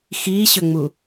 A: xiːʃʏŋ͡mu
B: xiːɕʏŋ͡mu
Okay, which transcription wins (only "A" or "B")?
B